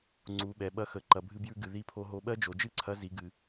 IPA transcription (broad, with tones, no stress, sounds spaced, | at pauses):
ŋ͡ǀ u˩˧ ɓ ɛ˩ ɓ ɐ˧˥ x ə˩˧ ǃ ɐ˩ bʱ ɨ˧ b j ʉ˧ ɡ ɨ˩ ð i˧˥ pʰ o˧ ɦ o˧ ɓ ɜ˥ d͡ʒ o˩˧ d͡ʒ ɨ˥ ǀʰ ɐ˧˥ z i˩˧ ɡ ɨ˩